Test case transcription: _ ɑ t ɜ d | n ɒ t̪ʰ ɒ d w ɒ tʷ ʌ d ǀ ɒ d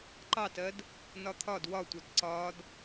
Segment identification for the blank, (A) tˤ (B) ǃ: B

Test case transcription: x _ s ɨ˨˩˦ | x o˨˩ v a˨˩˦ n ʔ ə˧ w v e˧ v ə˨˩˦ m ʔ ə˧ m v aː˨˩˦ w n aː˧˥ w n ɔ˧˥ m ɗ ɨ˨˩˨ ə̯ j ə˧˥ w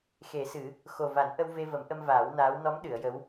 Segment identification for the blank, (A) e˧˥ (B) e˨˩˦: B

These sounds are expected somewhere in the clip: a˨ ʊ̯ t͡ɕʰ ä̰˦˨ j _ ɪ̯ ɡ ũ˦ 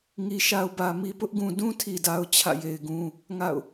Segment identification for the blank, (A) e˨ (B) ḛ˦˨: A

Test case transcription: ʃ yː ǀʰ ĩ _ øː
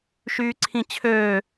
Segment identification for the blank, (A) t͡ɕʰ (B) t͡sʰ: A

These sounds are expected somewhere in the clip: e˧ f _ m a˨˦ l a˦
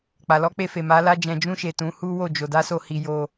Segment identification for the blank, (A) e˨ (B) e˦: A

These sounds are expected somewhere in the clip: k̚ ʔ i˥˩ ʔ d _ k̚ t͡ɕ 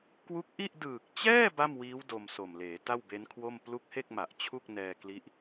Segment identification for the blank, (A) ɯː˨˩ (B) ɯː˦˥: A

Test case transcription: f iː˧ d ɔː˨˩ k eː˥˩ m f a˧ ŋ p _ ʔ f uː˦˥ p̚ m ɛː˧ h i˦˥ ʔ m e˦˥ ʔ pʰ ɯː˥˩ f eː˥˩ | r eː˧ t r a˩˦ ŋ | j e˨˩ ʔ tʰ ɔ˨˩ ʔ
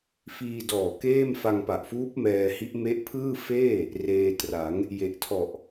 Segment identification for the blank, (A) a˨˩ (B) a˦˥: A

